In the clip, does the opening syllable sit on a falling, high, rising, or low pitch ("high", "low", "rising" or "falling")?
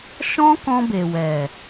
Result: high